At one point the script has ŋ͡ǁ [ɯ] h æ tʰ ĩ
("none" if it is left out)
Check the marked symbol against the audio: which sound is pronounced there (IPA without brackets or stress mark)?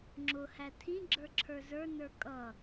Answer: ʊ